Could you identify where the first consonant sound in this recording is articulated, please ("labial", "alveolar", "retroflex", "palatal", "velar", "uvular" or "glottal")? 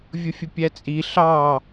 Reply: labial